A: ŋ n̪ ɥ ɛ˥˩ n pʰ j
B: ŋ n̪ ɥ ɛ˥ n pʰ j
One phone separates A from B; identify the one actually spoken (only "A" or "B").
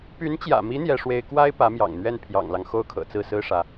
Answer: A